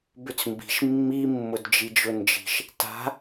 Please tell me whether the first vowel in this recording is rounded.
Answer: yes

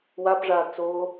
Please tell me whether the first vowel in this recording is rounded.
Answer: no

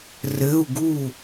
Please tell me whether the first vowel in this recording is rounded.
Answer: no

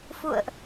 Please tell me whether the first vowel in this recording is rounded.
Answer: yes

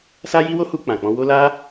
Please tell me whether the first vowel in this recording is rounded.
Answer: no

